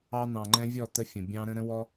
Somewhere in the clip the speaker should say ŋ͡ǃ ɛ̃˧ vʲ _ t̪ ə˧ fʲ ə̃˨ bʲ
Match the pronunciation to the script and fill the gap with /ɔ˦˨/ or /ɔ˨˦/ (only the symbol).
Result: ɔ˦˨